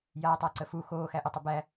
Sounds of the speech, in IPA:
j aː tˤ æ ǀ ə f u x oː x æ ʔ ɵ tˤ ə b æ

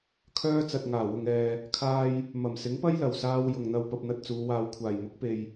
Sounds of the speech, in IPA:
kʰ œː˥ t͡s ɐ˨ t̚ ŋ aː˨˩ w ʊ˨ ŋ ɛː˨ | kʰ aː˧ j | m ɐ˨˩ m s ɪ˨˥ ŋ p ɐ˥ j l ɐ˨˩ w s aː˧ w j ʊ˨ ŋ n̪ ɐ˧ w p ɐ˧ p̚ n̪ ɐ˧ t̚ t͡s uː˨˧ w aː˧ w kʷʰ aː˨˩ j m ʊ˨˥ k̚ p e˨ j

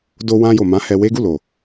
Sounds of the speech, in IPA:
d o˧ w ã˧ j o˨ m ã˨˦ h ɛ˧ w e˦ ɡ u˦˨ l o˨

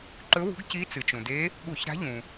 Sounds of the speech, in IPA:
ǃ ɵ˧˥ w ṳ˧˥ ɡ c i˧˥ t͡s ɨ˩ t͡ʃ ũ˩ d e˧˥ | ɠ u˧˩˧ ç ɾ a̤˧˥ ʎ ũ˩

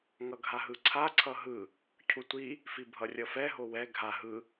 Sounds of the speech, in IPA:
ŋ ʌ ɡʱ a ɦ ɯ ǀʰ a ǀʰ ʌ ɦ ɯ | cʰ u tʷ i | f i bʱ ʌ rʲ ʌ f ɛ ɦ o w ɛ ɡʱ a ɦ ɯ

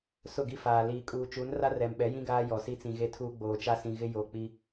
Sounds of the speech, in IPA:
s ʊ˦˨ ɡ i˦ f aː˨ l iː˨ kʼ uː˨ t͡ʃ u˨˦ n r a˦ r ɛ˨ m ɓ ɛ˨˦ j ĩ˦ ɡ aː˦ j ɔ˨ s i˦ t͡s ĩ˨ ɣ e˦ tʰ uː˦ ɡ͡b oː˨ t͡ʃ a˦ s ĩ˨ ɣ ɪ˦ j o˨ k͡p i˦

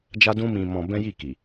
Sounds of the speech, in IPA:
d͡ʒ a˦ d ũ˦ m ĩ˧ m ɔ̃˧ b ɛ̃˦ j i˦˨ k i˨

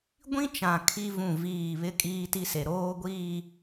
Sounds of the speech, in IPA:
ɡʷ ĩ˦ t͡ʃ ã˨ kʰ i˦ v ũ˦˨ v iː˦˨ β ɪ˦ kʼ iː˦ t i˦ s e˨ ɾ oː˦ ɡʷ i˦˨

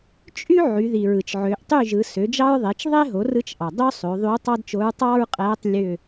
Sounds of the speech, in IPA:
t͡ʃʼ y˥ ʕ y˩˧ ð i˩ ɹ ɯ˩ t͡ʃ ʕ ø˩˧ ʔ tˤ y˥˨ ʒ ɯ˩˧ s ø˩˥ d͡ʒ ɑ˥ ɹ ðˤ e˩˥ t͡ʃ ðˤ e˥ ɦ o˩˥ r ɯ˧˥ t͡ʃ ʔ ɑ˩ dˤ ø˥ sˤ ø˩˧ ðˤ y˧˥ tˤ ɑ˥ d t͡ʃ o˧˥ ɹ tˤ ɑ˥ ɹ qʼ æ˧˥ tˤ lʲ ø˥˨

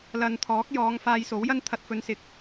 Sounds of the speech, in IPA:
l ɐ˨ n t̪ʰ ɔː˨˥ k̚ j ɔː˨˧ ŋ f aː˧ j s o˨˥ w j ɐ˥ n t̪ʰ ɐ˧ t̚ f ɵ˨˧ n s ɪ˨ k̚

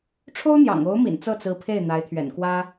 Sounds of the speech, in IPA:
ʈ͡ʂʰ o˥ ʊ̯ n̪ j ɑ̰˨˩ ŋ o˧˥ ʊ̯ m ḭ˨˩ n t͡s ɤ˥˩ t͡s ɹ̩˧˥ pʰ e˥˩ ɪ̯ n̪ a˧˥ ɪ̯ t̪ʰ ɥ ɛ̰˨˩ n k w ä˥

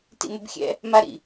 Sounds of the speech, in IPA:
t ḭ m ɘ b xʲ ɛ̰ | m a ɾ ḭ

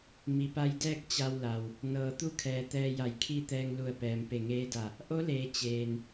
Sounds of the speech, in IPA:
m i˩ p a˧ j d ɛː˥˨ k̚ t͡ɕ a˧ w l a˩ w | n ɤː˩ t̪ u˧˥ kʰ ɛː˩ t̪ ɛː˧ j a˧˩ j kʰ i˥˨ t̪ ɛː˧ ŋ l u˧˩ ə̯ p ɛː˩ m p e˧˩ ŋ eː˧˥ d a˧˩ | ʔ o˧˥ l eː˩˧ t͡ɕ eː˩ n

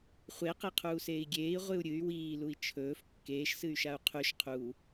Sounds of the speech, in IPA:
χʷ e q e qʰ uː s eː i̯ ɡʲ eː i̯ ʁʷ ɨ u̯ ɾʲ ɨ y̯ w iː l u i̯ t͡ʃʰ ɵː f kː eː ʃ s ɨ y̯ ʃ a u̯ qʰ ʉ ʃ qʰ u

